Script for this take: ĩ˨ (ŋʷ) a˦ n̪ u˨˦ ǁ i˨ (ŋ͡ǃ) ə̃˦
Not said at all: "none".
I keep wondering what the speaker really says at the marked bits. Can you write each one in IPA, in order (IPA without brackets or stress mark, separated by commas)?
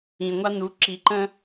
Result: ŋʷ, ǃ